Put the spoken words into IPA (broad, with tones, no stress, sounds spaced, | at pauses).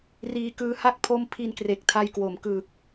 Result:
r iː˧ k ɯː˦˥ h a˥˩ k̚ pʰ o˥˩ m pʰ i˧ n k r e˨˩ k̚ tʰ a˧ j k w o˩˦ m k ɯː˨˩ k̚